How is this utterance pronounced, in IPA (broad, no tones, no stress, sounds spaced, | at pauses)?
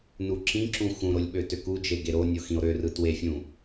n u ǁ ĩ ǁ ũ x ũ ɾ o lʲ ɓ ø t ø k u d͡ʒ e ɡ e ɾ o nʲ o x ĩ o̯ ɾ ø r ɯ t w e fʲ ũ